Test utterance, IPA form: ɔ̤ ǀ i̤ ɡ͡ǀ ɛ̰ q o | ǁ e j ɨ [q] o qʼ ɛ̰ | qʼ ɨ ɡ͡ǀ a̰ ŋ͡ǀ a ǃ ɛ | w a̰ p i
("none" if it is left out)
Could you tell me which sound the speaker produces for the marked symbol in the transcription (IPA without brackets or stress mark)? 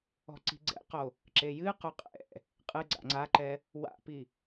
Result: q